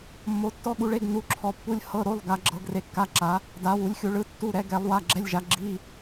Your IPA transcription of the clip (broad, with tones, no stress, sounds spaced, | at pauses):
mː o˨˥ tː ɔ˧˥˧ ɠ u˨˥ ɭ e˧˥˧ ɡ n u˧˥˧ ǁʰ ɔ˨˥ pː u˧˥˧ lʲ h ɤ˧˥˧ ɾ o˧˥˧ lˠ ɡ a˨˥ ɡ͡ǁ ɤ˨˥ ɡ r e˨˥ kː a˧˥˧ ǁ a˨˥ | d a˨˥ w u˨˥ lʲ xʲ u˨˥ ɭ ɯ˧˥˧ tː u˧˥˧ ɾ ɛ˨˥ ɡ ɛ˨˥ lˠ w a˧˥˧ ɡ͡ǁ ɛ˧˥˧ lʲ ʒ a˨˥ ɡ͡ǁ i˧˥˧